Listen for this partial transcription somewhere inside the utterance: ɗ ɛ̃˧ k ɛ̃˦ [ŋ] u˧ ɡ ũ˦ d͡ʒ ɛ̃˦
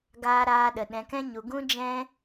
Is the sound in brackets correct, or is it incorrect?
incorrect